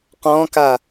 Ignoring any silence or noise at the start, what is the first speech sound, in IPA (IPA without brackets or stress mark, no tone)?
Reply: q